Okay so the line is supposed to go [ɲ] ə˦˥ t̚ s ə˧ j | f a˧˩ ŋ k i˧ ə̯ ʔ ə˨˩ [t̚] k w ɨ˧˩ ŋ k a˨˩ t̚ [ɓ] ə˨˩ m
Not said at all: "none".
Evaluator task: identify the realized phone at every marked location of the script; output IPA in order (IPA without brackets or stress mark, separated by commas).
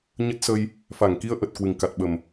ɲ, t̚, ɓ